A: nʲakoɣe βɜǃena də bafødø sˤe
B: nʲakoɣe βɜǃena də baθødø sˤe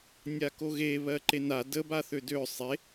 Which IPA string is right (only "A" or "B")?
B